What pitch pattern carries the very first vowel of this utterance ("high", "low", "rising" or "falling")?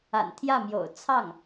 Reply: low